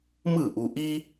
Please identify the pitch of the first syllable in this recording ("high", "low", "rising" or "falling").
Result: falling